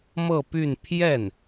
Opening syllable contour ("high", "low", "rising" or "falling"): falling